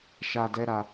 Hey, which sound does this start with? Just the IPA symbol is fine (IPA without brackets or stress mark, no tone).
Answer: ʃ